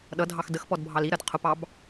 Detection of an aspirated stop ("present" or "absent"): present